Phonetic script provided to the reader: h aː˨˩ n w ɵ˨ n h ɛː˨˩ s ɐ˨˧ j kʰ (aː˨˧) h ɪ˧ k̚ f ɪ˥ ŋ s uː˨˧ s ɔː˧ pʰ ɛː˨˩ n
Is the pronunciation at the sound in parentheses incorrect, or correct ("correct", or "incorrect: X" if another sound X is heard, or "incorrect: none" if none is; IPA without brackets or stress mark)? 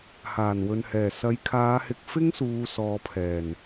correct